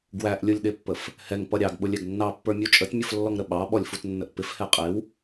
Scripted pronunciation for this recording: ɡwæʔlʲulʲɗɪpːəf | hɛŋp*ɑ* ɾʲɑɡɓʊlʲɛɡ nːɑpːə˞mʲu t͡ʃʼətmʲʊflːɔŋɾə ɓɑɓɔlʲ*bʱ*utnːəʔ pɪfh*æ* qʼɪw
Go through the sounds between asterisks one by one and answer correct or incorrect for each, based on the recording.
incorrect: ʌ, incorrect: f, incorrect: ɛ

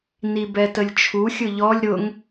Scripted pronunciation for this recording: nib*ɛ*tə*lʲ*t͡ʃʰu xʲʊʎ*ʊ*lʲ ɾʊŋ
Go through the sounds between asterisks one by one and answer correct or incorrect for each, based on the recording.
correct, correct, incorrect: ɔ

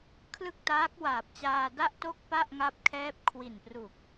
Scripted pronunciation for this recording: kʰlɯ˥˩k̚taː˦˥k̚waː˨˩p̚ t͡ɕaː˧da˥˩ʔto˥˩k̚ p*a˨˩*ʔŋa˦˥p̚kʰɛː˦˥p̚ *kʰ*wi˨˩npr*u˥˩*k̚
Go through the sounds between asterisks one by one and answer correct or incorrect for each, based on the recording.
incorrect: a˥˩, correct, incorrect: u˨˩

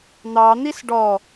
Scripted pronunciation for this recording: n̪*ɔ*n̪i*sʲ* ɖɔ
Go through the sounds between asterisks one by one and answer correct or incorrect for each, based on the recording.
incorrect: ɑ, incorrect: s

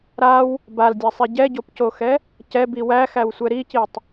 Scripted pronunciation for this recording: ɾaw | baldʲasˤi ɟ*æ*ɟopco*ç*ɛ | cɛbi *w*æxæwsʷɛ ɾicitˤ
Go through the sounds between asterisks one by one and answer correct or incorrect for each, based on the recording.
incorrect: ɛ, incorrect: x, correct

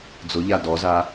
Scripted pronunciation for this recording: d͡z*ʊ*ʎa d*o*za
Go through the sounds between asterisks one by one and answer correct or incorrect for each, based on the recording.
correct, incorrect: ɔ

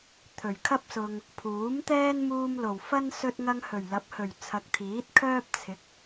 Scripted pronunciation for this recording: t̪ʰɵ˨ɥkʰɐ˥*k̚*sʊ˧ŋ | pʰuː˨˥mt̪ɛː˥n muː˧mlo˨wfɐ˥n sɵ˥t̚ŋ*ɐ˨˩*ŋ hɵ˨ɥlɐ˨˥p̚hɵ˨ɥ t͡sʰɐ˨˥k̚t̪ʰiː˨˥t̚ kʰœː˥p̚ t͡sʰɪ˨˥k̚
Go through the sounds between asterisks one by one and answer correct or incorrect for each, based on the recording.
incorrect: p̚, incorrect: ɐ˥

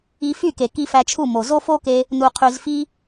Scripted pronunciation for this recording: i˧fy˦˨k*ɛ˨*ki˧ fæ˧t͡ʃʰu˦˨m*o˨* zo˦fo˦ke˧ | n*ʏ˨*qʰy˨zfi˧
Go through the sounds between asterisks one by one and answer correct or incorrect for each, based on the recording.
incorrect: e˨, correct, incorrect: u˨

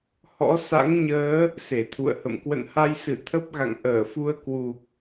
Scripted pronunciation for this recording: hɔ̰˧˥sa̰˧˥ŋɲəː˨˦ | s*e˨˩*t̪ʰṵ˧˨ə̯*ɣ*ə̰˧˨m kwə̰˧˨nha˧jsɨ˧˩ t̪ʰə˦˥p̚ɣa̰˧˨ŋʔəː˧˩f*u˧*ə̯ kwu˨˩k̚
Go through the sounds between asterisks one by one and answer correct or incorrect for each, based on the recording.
incorrect: e˧˩, incorrect: h, correct

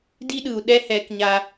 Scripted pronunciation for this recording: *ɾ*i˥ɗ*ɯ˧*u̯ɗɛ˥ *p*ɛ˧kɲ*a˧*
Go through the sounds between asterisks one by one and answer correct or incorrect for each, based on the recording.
incorrect: d, correct, incorrect: h, correct

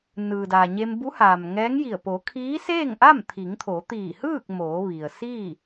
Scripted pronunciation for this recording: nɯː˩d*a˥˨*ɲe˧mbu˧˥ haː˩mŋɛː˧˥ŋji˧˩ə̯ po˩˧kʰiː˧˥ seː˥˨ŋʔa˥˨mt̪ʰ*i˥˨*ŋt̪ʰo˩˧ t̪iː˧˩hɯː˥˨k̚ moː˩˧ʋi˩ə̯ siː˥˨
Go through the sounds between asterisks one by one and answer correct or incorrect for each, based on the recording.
incorrect: a˩, incorrect: i˩˧

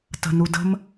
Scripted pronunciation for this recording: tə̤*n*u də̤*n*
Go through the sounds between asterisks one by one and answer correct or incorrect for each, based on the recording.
correct, incorrect: m

